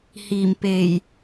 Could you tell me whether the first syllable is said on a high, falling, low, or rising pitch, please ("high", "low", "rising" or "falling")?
low